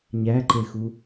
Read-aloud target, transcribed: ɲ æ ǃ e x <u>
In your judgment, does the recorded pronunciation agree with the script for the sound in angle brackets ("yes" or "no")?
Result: yes